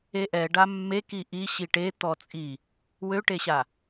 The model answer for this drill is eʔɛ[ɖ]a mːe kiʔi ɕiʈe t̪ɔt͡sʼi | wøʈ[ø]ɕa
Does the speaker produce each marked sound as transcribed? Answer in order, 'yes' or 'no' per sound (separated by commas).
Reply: yes, no